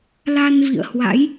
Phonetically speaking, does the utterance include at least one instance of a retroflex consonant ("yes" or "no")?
no